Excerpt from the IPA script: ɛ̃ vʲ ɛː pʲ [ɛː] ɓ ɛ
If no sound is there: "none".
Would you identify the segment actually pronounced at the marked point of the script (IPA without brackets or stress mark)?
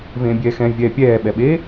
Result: ɛː